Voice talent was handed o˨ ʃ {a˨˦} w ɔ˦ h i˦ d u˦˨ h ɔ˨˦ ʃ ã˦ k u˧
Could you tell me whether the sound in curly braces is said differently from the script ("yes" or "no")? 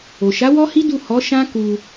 no